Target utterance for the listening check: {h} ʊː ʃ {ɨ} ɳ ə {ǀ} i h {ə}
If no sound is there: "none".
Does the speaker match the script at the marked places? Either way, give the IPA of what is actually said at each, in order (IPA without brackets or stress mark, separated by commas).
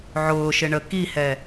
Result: ʕ, ɪ, k, ɛ